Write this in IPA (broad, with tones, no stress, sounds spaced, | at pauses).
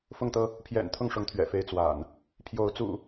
f ʊ˥˨ ŋ t̪ ɤ˦ | pʰ j ɛ̰˨˩ n t̪ʰ ʊ˥˨ ŋ ʂ ʊ˨˦ ŋ t̪ʰ ɥ ɛ̰˨˩ f e˦ ɪ̯ t͡s w a̰˨˩ n | pʰ j o˨˦ ʊ̯ t͡s ṵ˨˩